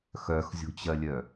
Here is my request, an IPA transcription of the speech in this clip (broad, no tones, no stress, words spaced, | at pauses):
xœxzʲo̤t͡ɕɜlʲœ